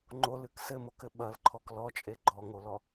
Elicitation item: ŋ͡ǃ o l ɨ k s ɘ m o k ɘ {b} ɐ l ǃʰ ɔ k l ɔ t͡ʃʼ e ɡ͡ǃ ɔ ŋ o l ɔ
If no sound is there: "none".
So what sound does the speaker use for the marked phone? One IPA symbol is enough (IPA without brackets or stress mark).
ɓ